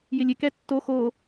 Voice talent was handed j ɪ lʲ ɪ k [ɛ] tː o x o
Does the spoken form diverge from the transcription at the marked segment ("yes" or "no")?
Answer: no